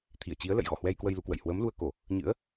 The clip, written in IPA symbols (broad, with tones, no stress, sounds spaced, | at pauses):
t̪ʰ i˧˩ ə̯ t͡ɕ i˨˦ ə̯ l ə̰˧˨ j ɣ ɔ˧˩ h w ɛ˧ j k w ə˧ j l u˨˦ k w ə̰˧˨ j h w əː˨˦ m l u˧ ə̯ k o˧˩˨ | ɲ ɨ̰˧˥ ə̯